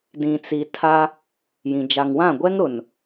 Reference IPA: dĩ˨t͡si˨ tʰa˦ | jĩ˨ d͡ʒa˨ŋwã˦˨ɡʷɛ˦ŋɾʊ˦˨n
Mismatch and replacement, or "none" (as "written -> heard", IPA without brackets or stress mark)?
ʊ˦˨ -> ʊ˨